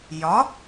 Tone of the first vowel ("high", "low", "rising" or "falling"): rising